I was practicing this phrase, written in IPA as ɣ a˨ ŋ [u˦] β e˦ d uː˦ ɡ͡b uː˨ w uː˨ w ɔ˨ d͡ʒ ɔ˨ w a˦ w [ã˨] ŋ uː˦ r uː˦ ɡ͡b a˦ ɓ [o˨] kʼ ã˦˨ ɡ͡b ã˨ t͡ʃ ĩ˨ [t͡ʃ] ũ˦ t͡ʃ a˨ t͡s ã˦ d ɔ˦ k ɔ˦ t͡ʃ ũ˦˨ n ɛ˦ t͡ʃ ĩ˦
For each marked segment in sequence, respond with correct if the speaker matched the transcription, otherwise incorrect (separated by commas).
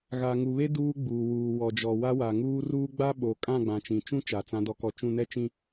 incorrect, incorrect, correct, correct